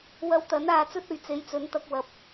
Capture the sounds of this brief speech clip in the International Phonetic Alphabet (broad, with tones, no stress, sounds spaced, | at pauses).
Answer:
w ɐ˧ w t̪ ɐ˨˥ n aː˧ t͡s ɵ˥ t̚ ɵ˨ ɥ t͡s e˨˥ j t͡s ɵ˨˥ n t̪ ɐ˧ k̚ w ɐ˨ p̚